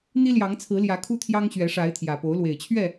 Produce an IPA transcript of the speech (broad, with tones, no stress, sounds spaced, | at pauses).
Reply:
n̪ i˦ l j ɑ˨˦ ŋ t͡sʰ ɹ̩˨˦ l j ä˨˦ kʰ u˦ t̪ʰ j ɑ˦ ŋ ɕ ɥ ɛ˨˦ ʂ a˨˦ ɪ̯ t̪ʰ j ä˨˩ p o˨˦ ʊ̯ l w e˨˩ ɪ̯ t͡ɕʰ ɥ ɛ˥˨